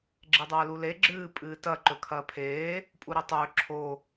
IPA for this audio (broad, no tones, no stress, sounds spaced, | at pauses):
ɡ͡ǁ e dˤ ɐː l u l e ɡ͡ǁ ɨː pʼ ɨː t ɐ ǃ ɵ kʰ ɐː pʰ eː | pʼ u ɾ i tˤ ɵː ǁʰ o